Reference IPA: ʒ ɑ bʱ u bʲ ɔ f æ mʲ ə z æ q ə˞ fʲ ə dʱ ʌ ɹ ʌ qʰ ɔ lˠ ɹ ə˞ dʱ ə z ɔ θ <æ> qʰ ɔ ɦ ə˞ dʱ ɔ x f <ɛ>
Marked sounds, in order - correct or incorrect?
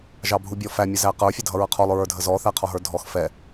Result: correct, correct

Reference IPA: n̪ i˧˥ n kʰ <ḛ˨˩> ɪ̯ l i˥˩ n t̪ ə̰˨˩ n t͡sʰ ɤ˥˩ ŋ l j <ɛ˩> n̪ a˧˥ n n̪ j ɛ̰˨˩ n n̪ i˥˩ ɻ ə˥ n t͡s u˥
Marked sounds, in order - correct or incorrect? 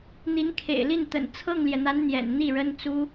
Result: correct, correct

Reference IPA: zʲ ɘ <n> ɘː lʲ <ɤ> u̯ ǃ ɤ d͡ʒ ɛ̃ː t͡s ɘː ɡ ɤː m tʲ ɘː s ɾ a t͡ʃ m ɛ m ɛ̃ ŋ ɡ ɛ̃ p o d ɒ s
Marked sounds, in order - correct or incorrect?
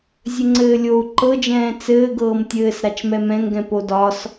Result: incorrect, incorrect

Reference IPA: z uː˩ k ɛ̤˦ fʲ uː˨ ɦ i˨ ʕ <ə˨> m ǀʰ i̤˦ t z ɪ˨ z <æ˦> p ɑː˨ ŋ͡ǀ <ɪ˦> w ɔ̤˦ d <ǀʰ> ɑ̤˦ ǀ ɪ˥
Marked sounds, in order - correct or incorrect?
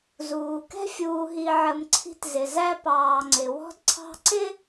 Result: correct, correct, incorrect, correct

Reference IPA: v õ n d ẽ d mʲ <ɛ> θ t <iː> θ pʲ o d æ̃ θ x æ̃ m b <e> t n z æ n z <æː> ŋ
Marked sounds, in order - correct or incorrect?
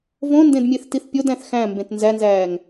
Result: incorrect, incorrect, incorrect, correct

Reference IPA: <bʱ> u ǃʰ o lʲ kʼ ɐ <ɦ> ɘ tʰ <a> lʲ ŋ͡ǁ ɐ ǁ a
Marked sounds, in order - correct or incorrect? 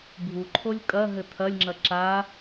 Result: correct, correct, incorrect

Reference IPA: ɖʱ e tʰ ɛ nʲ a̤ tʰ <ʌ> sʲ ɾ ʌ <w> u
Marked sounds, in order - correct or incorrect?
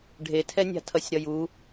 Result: correct, incorrect

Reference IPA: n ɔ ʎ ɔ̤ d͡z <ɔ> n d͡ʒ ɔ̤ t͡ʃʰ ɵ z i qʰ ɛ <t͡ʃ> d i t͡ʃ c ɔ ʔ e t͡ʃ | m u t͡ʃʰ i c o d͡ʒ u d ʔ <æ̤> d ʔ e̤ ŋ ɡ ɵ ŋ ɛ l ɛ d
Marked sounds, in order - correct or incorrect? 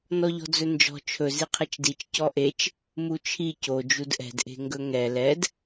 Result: incorrect, correct, incorrect

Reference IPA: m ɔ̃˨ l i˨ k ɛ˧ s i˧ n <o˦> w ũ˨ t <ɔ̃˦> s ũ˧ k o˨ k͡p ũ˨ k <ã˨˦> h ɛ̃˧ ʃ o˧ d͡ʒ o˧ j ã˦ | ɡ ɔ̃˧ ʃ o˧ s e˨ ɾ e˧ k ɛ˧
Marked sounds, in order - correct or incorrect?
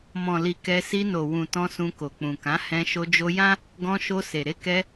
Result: incorrect, incorrect, correct

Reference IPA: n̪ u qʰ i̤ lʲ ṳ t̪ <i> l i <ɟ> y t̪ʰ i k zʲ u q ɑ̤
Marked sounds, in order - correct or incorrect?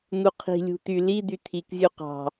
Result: incorrect, incorrect

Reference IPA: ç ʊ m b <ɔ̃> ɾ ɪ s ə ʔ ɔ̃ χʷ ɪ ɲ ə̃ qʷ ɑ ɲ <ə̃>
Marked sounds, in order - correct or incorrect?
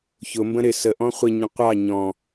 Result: incorrect, incorrect

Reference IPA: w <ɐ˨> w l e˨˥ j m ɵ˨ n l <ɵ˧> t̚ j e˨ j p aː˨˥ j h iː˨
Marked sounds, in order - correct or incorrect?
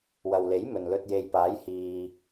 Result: correct, correct

